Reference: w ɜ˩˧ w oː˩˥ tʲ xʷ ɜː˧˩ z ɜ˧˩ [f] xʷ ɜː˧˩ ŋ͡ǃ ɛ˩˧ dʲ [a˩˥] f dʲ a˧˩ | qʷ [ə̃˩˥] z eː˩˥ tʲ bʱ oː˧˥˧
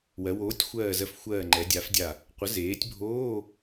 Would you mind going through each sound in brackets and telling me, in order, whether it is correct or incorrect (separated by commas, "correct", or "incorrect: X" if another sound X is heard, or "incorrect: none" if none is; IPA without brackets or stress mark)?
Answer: correct, correct, incorrect: ə˩˥